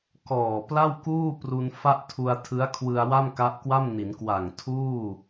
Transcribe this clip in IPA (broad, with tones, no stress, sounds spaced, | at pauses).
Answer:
k ɔː˨˩ p l a˥˩ w k uː˥˩ p r u˧ n f a˥˩ ʔ tʰ u˧ a̯ tʰ ɯ˦˥ a̯ kʰ w ɯ˧ a̯ w a˥˩ m k a˦˥ ʔ k w a˥˩ m n i˩˦ n k w a˨˩ ŋ tʰ uː˥˩